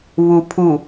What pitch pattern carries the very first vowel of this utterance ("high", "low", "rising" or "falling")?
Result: low